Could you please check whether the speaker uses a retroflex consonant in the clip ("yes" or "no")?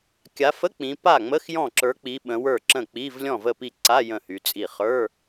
no